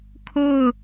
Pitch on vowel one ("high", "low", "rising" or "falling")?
falling